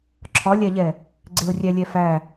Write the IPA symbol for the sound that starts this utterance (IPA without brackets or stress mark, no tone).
ǁʰ